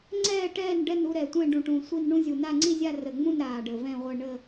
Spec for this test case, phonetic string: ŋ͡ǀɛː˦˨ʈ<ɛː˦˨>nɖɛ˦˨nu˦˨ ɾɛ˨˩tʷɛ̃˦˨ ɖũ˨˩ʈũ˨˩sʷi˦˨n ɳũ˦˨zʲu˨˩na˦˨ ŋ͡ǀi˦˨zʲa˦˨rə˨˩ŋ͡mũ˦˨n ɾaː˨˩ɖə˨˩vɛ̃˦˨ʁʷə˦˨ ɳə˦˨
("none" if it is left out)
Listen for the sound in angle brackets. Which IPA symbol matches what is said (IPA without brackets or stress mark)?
ɛː˦˨